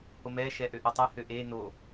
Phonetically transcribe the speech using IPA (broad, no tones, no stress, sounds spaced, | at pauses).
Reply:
h o m ɛ ʃ ɛ ʔ ø ʔ o tˤ ɛ h ø ʔ e n o